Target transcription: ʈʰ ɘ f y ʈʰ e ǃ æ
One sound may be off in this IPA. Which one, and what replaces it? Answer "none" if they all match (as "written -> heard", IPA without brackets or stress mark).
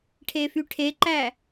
ɘ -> e